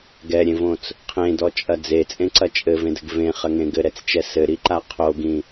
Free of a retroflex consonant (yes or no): yes